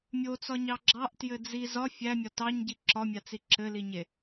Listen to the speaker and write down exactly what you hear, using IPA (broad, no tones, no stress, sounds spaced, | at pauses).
mʲ o t͡s ɒ ɲ ɑ ɡ͡ǁ ɑ ʔ t j ɘ d͡z i z ɒ fʲ æ mʲ ɒ t ɑ ɲ ɟ i ǁ ɒ mʲ a t͡s i ǁ ɘ l i ɲ e